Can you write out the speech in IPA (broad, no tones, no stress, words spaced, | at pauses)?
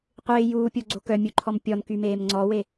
qʷɪː juːpʲoɡ͡ǀo kœmʲuǃʰɔm pʲɔnkymeːm ŋ͡ǀɔwe